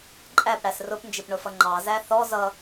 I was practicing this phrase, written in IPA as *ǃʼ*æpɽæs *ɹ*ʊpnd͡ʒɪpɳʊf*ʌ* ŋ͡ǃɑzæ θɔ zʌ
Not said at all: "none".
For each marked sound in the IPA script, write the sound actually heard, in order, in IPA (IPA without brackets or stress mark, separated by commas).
ǃʼ, r, ʌ